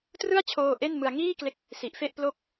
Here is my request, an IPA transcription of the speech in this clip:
trɯ˥˩a̯t͡ɕʰoː˧ ʔe˥˩nmɯ˧a̯ ŋiː˥˩kle˦˥k̚ | si˨˩ʔfe˥˩ʔplo˥˩k̚

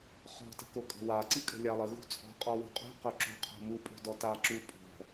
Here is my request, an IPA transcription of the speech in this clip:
χɔ̤tə̤ko kʼə̤waǀi kʼə̤lʲalˠəɣṳ t͡sʼɔ̤ qʼɔwṳqʼṳ qœǁo̤ qʰo̤mu pʼo̤dɔtaǁu pʼɔ̤

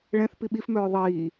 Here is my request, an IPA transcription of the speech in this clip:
ɭɛ̃θ piɓifmœː ðˤiː

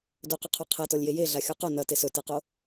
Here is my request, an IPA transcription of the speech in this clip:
dɵqɵqʰo qʰɛtɔlʲje jeɮaxʲo qo nɐte sɵteqo

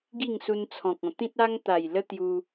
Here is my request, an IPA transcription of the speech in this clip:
ɡi˥˧ŋsu˧nt͡sʰɔ̃˨k̚ɔ̃˨˩ t̪ĩ˦t̚a˦ŋt̪a˨˩j lə˦t̪ju˧

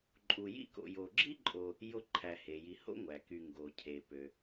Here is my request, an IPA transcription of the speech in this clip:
ǃʼu˨jḭ˦ko̰˨ jo˨ɡ͡ǁi˥ǃʼo˨ | jo˦ǃʰæ˨he˩ji˨ ho̰˥ŋʷæ˩ky˨ ŋɡo˩cʰe˩pø˩

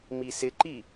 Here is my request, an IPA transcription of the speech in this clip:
misɪǃi

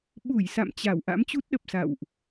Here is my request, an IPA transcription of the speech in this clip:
ɓu˧˩j sa̰˧˨mt͡ɕa˧˩w ʔa̰˧˥mt͡ɕu˦˥t̚ɗə˨˩p̚sa̰˧˨wʔ

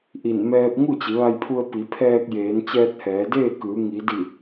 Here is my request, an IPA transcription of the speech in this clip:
ʔi˧˩n mɛː˧p̚ ŋu˥˨t͡ɕi˩˧ʋa˧jpʰu˧ə̯ pi˩˧pʰɛː˧k̚jeː˩˧n t͡ɕɛː˧t̚hɛː˩˧deː˥˨kɯː˩˧ ŋi˩˧ di˧˩

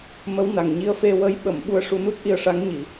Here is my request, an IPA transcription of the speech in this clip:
mə˧˥wna˨˩ŋɲi˧ə̯ fe˧wə˧˥j ɓə˨˩˨m ɓu˧ə̯ʂu˧nu˦˥t̚ʔi˧ə̯ ʂa˧˥ŋɲi˨˩˨

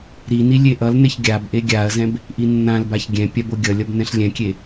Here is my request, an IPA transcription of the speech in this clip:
ɾini lʲeʔʌlneç ɡʲab ʔeɡʲaɐ̯zɛ̃b | ʔinːãlbaç ɡʲɛ̃ pʲaboɡʲʌlʲʌb nɛ̃ɬlʲɛ̃kʲe

